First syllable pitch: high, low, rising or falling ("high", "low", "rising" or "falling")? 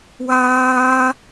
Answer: high